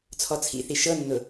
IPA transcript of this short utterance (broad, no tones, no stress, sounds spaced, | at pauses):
t͡sʰ ɔ t͡sʰ ḭ θ i ʃ ɤ nː ʊ